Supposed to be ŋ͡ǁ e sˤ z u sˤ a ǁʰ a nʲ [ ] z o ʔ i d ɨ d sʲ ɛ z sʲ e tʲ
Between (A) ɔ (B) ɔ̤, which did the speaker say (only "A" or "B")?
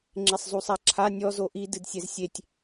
A